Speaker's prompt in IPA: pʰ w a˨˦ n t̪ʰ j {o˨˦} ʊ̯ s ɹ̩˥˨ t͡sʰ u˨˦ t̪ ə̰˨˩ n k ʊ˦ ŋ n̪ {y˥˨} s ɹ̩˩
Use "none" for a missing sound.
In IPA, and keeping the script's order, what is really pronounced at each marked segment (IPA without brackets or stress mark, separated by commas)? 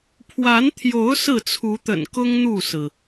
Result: o˨˦, u˥˨